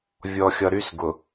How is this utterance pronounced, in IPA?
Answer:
vʲɔ˨xʲʌ˨ɾy˦sɡʊ˨

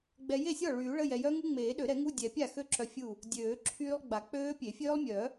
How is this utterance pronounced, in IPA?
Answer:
ɡ͡bɛ˨ je˥˩sʲɔ˥˩ ɭyː˨˩˦ɭə˧˥˧jɛ˨ jœ˦˥ŋu˦˥ ŋ͡meː˨˩˦ɗø˨˩˦ɾɛ˨˩˦ŋu˧˥˧ dʲɛ˨˩˦pʲa˥˩xø˦˥ǁœ˨ fʲu˥˩ | dʲøː˨˩˦ǁʰyː˦˥lˠɡ͡ba˨˩˦ k͡pøː˦˥pʲe˨˩˦ fʲøː˦˥lˠmʲœ˨˩˦

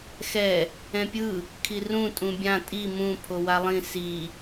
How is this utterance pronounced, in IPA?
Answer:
xɛ | ɛ̃pʲɯ | kʰirũ tʼũbʲã tʼi mũ pʰowalˠĩ si

